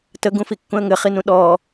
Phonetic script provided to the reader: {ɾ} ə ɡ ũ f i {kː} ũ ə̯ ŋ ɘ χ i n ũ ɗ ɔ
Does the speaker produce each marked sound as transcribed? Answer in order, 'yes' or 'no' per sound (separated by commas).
no, yes